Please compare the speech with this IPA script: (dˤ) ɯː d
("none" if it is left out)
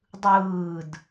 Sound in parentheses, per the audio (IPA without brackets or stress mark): dˤ